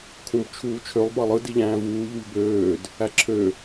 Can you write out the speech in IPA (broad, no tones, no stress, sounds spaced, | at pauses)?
kʰ ũ b t͡ʃʰ uː t͡ʃʰ ø lˠ b ɑ lˠ ɯ d i ʎ æ̃ː v uː ʎ u ʎ b øː d | æ ǁʰ ø